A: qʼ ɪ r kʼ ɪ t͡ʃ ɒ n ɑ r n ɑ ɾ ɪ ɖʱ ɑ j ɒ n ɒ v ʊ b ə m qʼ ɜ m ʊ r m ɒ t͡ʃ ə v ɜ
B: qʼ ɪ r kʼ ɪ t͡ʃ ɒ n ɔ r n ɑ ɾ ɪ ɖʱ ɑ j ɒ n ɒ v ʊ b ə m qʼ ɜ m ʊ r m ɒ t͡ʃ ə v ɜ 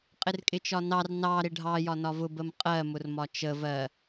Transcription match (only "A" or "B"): A